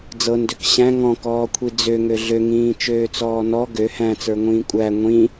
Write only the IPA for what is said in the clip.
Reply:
d͡zɤndøk ɕæ̃ ŋɔ̃kɔːkʷʰi d͡zøŋø ɮøŋĩːt͡ʃøːt͡sɔː nɔ ɡø hæ̃t͡sə˞ŋʷĩː kʷʼæ ŋʷĩ

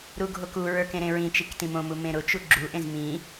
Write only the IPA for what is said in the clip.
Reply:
ɾuɡʱokuɹə˞ kẽɾẽɹĩt͡ʃik tĩmõmu mẽɾʊt͡ʃu ɡ͡ǁuʔẽz mĩ

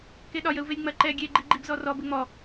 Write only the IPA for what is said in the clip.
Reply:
keɗɒj əu̯velʲŋ͡mɐ ǃɛ ɡʲe ɡ͡ǃiɡ͡ǃibzɔrɔ bɘŋ͡mɔ

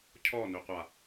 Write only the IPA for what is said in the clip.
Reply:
cʰɔnøqʷa

